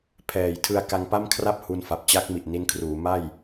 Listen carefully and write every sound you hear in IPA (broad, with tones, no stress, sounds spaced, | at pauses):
pʰ ɛː˨˩ j tʰ ɯ˧ a̯ k a˧ ŋ p a˥˩ m kʰ r a˥˩ p̚ h u˧ n f a˨˩ p̚ t͡ɕ a˦˥ k̚ m i˨˩ ʔ n i˧ n kʰ r uː˩˦ m a˥˩ j